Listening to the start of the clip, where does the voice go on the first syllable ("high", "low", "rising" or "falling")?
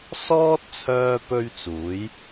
high